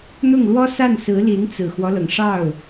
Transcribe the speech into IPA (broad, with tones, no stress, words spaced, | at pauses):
n̪ʊ˥˩ŋlwɔ˥sa˥˩n sɹ̩˧˥li˧˥n t͡sɹ̩˨˩xwɔ˦lɤ˩ŋ ʂɑ˥˩ʊ̯